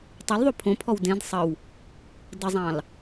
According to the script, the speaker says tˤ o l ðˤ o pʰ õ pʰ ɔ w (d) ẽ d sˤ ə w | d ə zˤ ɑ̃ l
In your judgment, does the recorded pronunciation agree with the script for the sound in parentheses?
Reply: yes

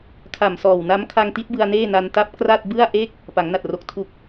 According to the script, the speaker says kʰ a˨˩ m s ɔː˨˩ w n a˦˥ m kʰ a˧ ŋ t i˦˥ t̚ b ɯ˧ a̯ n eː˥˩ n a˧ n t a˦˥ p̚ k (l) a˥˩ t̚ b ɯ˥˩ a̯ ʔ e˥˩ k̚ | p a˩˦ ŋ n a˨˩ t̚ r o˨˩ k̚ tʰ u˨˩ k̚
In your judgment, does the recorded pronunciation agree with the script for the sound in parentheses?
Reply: no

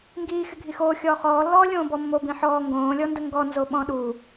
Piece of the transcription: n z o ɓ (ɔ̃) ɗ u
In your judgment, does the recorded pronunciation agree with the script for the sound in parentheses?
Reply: yes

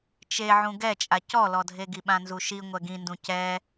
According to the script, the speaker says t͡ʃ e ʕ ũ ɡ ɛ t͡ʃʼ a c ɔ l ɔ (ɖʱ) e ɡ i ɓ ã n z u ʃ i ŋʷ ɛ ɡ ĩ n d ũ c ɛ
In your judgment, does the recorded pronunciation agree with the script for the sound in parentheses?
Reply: no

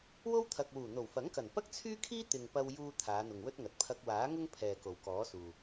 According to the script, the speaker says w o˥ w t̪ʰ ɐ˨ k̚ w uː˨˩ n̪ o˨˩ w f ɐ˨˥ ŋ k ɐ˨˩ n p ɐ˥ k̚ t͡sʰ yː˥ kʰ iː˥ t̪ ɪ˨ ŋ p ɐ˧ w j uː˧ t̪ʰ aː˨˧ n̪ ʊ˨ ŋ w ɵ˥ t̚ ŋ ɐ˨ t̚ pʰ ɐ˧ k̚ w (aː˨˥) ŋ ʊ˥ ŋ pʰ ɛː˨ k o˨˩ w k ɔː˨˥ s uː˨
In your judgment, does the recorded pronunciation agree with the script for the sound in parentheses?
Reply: yes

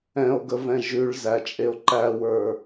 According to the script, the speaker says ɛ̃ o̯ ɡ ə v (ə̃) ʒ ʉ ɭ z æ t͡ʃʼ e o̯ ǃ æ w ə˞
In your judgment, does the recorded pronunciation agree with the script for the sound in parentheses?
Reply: no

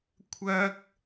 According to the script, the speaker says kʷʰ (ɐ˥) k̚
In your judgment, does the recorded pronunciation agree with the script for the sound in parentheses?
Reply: no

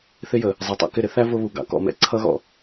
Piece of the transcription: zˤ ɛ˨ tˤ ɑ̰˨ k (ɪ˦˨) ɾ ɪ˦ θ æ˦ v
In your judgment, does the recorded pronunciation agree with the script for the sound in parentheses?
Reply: yes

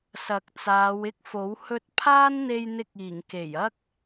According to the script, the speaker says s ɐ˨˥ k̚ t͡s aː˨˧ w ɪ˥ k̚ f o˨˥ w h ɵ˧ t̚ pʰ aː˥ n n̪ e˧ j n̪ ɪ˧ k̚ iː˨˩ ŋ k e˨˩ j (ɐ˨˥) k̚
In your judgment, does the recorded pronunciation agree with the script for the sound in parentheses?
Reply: no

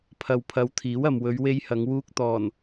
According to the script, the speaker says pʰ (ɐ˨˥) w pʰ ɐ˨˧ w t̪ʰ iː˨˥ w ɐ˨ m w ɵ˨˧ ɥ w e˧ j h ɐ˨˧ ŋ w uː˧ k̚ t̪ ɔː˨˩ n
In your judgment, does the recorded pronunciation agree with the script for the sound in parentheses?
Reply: no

